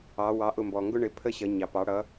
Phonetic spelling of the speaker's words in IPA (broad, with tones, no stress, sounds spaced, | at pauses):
ɑ˩˧ w ɑ˩˥ ʔ ʊ˧˩ m b ɔ˩ ŋ ɡ ʊ˦ ɳ ɪ˩˥ pʰ ə˦ ɕ ʌ˩˧ ɲ ɑ˩ p ɑ˩˧ ɽ ʌ˩˧